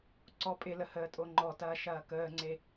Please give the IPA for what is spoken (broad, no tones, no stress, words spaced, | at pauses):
ǀɔpʼɪlə həːtʼoŋ͡ǃɔtɐː ʃɐːkəːŋ͡ǀe